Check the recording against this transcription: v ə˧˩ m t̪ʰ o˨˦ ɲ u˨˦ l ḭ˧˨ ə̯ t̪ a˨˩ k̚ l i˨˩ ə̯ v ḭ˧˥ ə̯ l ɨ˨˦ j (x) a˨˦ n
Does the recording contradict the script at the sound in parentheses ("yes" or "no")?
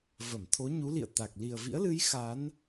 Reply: no